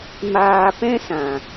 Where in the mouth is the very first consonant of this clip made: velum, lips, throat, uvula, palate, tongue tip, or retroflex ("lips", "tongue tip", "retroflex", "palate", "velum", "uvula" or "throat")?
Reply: lips